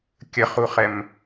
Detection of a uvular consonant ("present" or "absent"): present